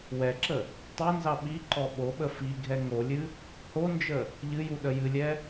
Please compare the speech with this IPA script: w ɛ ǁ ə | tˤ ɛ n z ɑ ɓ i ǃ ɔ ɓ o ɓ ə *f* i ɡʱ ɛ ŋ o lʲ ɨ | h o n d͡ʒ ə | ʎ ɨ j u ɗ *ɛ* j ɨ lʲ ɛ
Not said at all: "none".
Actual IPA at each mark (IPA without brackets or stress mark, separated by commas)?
f, ə